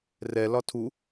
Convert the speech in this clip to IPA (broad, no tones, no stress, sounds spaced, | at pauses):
r ɛ l ɒ tʰ u